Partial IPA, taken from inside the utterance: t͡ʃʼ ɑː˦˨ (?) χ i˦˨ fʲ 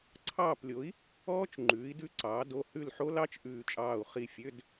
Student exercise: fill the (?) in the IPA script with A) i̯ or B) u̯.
B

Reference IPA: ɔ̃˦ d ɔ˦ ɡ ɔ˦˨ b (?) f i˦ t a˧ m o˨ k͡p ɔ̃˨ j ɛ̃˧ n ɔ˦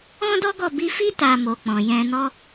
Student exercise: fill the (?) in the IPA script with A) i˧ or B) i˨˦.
A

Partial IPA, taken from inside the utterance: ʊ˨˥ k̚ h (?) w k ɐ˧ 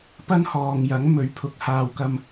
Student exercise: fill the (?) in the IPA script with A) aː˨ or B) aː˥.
A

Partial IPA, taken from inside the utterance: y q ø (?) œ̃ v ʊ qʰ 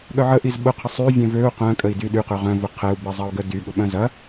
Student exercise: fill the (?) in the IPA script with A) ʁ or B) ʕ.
A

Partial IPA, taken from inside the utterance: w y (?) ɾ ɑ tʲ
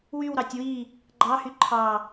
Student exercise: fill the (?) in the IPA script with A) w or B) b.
A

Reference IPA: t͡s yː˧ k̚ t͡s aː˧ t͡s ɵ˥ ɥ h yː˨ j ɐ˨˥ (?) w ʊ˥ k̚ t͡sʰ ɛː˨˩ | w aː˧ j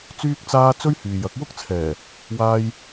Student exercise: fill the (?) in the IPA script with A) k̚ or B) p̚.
A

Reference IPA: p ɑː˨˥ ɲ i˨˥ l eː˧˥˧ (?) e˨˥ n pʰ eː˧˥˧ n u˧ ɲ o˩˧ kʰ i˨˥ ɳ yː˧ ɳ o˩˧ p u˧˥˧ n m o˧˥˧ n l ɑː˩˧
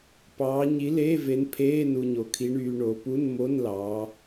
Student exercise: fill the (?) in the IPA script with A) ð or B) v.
B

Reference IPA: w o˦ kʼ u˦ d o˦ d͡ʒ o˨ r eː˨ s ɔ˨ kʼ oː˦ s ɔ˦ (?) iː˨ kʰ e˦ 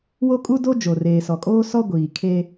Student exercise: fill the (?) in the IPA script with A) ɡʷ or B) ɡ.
A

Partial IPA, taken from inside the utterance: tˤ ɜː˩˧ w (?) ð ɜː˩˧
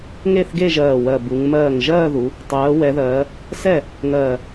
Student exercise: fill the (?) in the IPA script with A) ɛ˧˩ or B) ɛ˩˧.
B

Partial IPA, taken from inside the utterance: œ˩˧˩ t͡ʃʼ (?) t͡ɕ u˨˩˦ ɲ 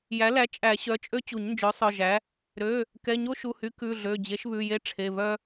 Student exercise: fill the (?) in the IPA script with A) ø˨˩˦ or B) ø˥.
B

